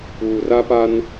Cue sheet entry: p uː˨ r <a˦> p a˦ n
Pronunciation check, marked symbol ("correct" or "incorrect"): correct